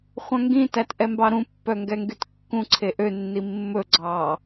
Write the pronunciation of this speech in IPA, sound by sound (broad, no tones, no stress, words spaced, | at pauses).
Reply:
χʷœ̃ŋɡĩtætʔɛ mbɑɾũ pːœŋɡɛŋɡytkːũ ǀʰeʔønːi mːɵɡ͡ǀɑː